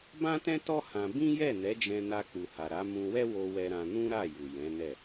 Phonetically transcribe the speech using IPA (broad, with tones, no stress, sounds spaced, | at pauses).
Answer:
b ã˦ t ɛ̃˦ t ɔ˦ h ã˧ b ĩ˦ j ɛ˦˨ n ɛ˨˦ d͡ʒ ɛ̃˧ n a˧ k͡p u˨ h a˨ ɾ a˨˦ m ũ˧ w ɛ˦ w o˧ w ɛ˧ ɾ ã˧ n ũ˦ ɾ a˦˨ j u˨ j ɛ̃˨˦ n ɛ˦˨